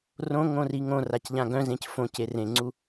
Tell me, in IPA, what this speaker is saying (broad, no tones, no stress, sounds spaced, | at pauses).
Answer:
r õ ŋ õ r i ŋ õ r a c ʎ ã ɡ œ̃ z ẽ c f õ c e r ẽ ŋ͡ǀ u